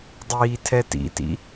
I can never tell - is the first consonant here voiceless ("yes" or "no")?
no